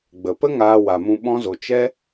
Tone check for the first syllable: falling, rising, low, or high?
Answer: low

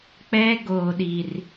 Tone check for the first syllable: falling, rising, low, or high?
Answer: high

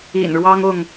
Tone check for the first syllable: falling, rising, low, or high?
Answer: low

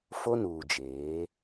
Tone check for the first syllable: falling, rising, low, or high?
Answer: high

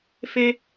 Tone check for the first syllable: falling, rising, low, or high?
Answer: high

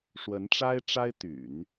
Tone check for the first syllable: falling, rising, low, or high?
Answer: rising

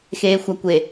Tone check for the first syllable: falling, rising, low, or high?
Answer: low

